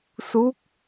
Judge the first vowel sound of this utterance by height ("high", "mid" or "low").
high